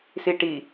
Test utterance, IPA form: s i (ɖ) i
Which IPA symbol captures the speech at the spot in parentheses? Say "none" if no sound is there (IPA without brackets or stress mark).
ʈ